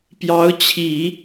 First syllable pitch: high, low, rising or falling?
rising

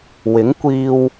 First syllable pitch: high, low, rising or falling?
rising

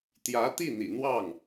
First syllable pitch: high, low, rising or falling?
rising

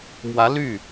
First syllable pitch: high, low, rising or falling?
rising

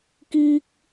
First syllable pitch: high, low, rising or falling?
high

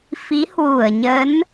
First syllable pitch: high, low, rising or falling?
rising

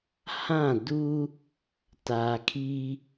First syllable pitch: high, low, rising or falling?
falling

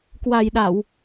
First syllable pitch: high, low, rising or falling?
low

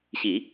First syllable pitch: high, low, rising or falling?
low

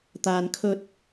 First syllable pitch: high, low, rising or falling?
low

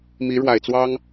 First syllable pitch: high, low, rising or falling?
rising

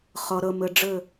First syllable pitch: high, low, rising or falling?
low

